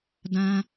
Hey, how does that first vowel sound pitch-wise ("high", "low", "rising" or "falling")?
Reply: high